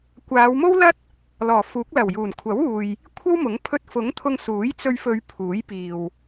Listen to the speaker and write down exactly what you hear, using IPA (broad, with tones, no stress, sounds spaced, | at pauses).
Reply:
kʷ aː˨˧ w m o˥ w l ɐ˥ t̚ | l ɔː˨˩ f uː˨˥ k̚ l ɐ˨˩ w j uː˨˩ n kʷʰ ɐ˨˥ w uː˨ j | kʷʰ ɐ˥ w m ʊ˨˥ ŋ pʰ ɵ˧ t̚ f ʊ˨˥ ŋ t̪ʰ ʊ˧ ŋ s uː˨˥ j t͡s ɵ˧ ɥ f ɵ˨˧ ɥ pʰ uː˨˥ j p iː˨ w